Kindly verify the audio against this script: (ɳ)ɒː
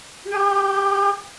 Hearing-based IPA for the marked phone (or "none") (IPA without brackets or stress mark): ɳ